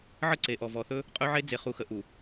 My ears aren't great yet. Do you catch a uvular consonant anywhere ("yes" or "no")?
yes